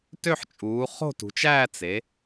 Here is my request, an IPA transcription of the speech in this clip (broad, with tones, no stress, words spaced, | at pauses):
tø˥˧ħt͡ʃʼuː˩˧ χo̤˥˧tṳ˩˧t͡ʃæː˥˧ t͡se˩˧